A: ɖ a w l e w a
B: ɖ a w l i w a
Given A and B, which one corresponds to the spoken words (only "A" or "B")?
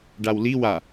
B